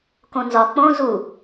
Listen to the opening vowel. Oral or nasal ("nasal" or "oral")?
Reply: nasal